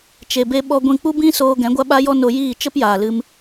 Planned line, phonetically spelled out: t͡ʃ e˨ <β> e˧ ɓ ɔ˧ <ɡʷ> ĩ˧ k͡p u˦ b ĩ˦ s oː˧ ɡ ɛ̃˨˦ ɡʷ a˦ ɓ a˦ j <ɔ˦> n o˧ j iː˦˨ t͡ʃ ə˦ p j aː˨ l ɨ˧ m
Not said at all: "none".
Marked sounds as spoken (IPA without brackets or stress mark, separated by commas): b, ɡʷ, ɔ˦